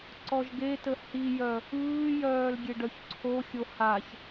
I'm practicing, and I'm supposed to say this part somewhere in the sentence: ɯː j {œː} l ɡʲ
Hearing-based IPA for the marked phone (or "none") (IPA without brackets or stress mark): œː